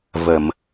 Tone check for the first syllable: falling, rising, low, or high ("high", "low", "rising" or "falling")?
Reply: low